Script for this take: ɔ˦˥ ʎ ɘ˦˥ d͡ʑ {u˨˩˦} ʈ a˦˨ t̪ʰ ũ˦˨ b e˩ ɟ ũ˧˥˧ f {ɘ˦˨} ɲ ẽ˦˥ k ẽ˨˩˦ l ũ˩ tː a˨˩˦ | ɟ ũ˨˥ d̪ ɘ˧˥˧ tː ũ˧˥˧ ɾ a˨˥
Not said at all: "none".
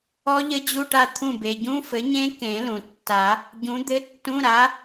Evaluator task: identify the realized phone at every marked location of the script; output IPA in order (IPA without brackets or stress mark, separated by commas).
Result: u˧˥˧, ɘ˨˥